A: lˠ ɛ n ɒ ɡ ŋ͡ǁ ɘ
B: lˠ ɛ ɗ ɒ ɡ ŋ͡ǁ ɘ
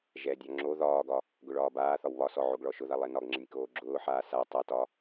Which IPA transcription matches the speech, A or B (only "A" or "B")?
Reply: A